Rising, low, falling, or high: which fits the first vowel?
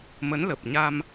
rising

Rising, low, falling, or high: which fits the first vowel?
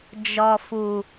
low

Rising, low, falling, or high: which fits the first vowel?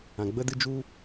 low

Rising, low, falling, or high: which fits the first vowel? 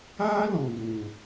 high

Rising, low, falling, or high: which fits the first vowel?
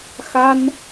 high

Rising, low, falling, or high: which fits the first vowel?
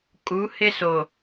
rising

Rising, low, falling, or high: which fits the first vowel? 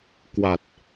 low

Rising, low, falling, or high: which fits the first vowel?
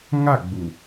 falling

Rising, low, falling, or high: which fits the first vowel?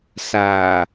low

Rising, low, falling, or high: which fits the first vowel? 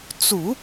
low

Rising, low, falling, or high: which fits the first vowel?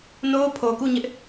high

